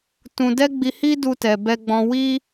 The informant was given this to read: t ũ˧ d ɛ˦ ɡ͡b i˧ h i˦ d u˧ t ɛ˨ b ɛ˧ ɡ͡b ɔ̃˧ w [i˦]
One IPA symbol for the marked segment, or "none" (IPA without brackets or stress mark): i˦